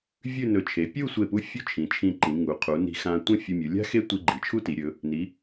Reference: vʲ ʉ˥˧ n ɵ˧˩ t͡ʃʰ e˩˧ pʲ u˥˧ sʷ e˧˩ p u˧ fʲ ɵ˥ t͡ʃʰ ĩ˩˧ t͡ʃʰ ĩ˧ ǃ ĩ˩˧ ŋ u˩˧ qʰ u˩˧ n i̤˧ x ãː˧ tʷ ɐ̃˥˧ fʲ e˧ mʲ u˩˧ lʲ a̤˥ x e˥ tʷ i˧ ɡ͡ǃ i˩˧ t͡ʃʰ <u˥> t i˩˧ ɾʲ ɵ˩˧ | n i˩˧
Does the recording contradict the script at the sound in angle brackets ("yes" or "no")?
no